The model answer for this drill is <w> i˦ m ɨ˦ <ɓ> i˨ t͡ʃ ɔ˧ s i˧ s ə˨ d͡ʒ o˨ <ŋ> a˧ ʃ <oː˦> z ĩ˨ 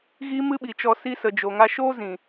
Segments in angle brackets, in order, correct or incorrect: incorrect: ɣ, correct, correct, correct

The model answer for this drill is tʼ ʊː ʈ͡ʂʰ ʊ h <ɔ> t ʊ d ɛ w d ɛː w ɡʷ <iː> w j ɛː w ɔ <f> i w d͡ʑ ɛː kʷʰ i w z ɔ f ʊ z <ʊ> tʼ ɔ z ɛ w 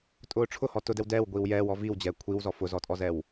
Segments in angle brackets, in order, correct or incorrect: correct, correct, incorrect: v, incorrect: ɔ

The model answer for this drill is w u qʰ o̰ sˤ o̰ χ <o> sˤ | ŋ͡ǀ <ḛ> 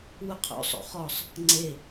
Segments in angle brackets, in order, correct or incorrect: incorrect: ɔ, incorrect: e

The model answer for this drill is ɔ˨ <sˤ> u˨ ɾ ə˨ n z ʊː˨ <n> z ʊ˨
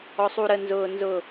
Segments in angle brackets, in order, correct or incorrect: correct, correct

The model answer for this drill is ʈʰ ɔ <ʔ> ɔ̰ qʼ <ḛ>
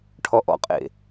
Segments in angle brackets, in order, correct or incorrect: correct, correct

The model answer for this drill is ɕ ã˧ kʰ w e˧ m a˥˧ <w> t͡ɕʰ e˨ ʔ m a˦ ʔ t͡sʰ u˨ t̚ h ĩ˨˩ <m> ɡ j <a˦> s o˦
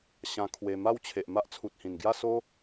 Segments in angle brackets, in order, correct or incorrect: correct, incorrect: n, incorrect: a˥˧

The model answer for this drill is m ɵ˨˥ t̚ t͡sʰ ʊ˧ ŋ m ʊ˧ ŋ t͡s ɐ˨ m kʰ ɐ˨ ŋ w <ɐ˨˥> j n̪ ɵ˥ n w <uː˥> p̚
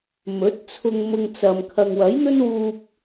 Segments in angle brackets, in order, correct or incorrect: correct, incorrect: uː˧

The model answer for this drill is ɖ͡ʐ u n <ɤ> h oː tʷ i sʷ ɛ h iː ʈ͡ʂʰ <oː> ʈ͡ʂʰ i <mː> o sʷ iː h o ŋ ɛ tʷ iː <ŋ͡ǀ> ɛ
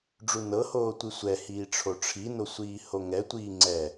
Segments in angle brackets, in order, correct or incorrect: correct, incorrect: o, incorrect: n, correct

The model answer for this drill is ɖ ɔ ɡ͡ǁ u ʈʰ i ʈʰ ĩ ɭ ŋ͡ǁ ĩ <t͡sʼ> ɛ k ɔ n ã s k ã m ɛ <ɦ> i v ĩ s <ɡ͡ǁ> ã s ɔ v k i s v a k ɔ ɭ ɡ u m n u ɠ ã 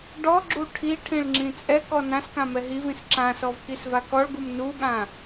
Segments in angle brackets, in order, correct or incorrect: correct, correct, incorrect: ǁ

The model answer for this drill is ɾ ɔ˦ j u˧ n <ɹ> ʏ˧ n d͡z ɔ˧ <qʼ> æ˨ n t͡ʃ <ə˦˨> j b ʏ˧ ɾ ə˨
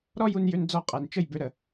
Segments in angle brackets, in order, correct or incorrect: incorrect: j, correct, correct

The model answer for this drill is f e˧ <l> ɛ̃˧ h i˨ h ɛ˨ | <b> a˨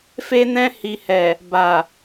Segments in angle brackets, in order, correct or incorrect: incorrect: n, correct

